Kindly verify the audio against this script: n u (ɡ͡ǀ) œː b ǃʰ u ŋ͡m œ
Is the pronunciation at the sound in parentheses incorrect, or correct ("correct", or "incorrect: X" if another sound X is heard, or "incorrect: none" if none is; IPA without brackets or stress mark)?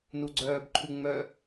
correct